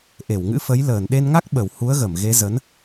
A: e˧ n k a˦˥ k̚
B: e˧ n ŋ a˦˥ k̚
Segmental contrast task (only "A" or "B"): B